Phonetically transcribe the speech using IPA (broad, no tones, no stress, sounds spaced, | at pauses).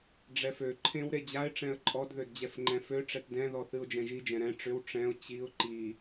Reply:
ɖ͡ʐ ɛ f ø ǃʰ ẽ w ɾ e d͡ʑ a ɪ̯ ʈ͡ʂ ɛ̃ ə̯ ǃʼ ɔ d ð ø d d͡ʑ ɛ f ŋ͡ǃ ɛ̃ f ø ʈ͡ʂ ɛ t d ɛ̃ ð ɔ θ ɨ ʊ̯ d͡ʒ ɛ̃ ʒ i d͡ʒ ɛ̃ ɾ ɛ̃ ʈ͡ʂ ʏ w ʈ͡ʂ ɛ̃ ʊ̯ t͡ɕ i ʊ̯ ǃ i